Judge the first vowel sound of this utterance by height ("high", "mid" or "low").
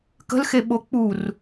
mid